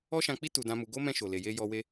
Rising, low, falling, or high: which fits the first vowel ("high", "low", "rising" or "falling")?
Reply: high